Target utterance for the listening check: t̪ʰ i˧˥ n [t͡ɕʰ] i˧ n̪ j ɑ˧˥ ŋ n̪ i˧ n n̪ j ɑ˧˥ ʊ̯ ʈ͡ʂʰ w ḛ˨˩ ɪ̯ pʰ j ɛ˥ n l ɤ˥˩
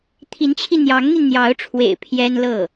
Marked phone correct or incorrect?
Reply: correct